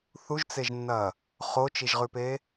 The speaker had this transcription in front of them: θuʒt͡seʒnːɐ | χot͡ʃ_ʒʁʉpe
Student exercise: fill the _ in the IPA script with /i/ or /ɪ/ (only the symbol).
i